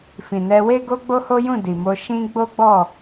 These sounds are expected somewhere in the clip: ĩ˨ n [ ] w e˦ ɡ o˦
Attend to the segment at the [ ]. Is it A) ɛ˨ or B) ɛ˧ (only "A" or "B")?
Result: B